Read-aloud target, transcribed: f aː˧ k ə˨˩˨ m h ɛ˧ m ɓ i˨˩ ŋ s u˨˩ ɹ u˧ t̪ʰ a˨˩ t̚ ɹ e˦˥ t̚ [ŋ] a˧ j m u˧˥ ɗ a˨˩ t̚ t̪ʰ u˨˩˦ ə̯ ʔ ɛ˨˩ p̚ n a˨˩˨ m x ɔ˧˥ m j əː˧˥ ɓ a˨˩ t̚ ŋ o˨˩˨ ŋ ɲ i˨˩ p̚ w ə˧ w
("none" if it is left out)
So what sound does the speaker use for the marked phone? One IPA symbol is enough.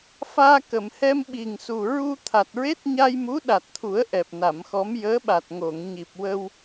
ɲ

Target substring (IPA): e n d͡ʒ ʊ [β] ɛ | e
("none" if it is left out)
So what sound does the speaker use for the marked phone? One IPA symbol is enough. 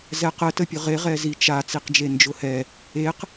h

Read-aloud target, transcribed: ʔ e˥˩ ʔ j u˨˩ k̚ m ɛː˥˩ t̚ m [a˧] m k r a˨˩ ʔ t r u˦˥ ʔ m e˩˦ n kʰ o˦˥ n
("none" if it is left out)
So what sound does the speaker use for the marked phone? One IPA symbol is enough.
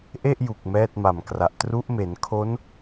a˨˩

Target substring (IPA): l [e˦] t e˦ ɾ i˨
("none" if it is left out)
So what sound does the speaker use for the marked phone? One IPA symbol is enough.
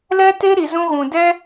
ɛ˦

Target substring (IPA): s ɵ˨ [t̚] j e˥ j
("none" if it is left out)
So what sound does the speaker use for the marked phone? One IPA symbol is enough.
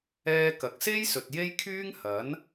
t̚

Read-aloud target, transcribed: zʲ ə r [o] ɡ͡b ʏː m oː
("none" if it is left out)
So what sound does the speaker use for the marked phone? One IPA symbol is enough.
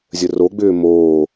o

